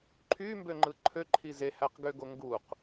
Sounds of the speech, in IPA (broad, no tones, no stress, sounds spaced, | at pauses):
ǃʰ y m b ø ŋ͡ǃ ɯ ǃʰ ø ǃʰ i z e h æ q ɡ ø ɡ o ŋ ɡ u q